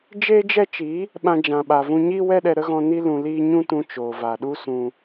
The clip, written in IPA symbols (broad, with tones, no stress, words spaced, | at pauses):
d͡ʒeː˦d͡ʒɛ˦t͡ʃi˨˦ | ɓã˧d͡ʒã˨ ɓa˨vũ˧ɲiː˦ wɛ˦ɗɛ˧ɾə˦ɣɔ̃˧ ni˧lũ˨ liː˦ɲũ˦tũ˧ t͡ʃoː˨va˨ɗu˦sũ˧